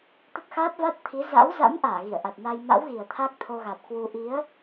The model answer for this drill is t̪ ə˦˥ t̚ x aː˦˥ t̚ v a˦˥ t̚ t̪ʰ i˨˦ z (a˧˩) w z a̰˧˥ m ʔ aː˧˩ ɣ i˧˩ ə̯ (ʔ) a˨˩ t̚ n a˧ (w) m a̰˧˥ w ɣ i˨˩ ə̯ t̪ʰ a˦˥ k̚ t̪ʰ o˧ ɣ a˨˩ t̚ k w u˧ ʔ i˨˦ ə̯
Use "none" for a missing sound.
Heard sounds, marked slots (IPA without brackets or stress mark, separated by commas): a̰˧˥, ʔ, j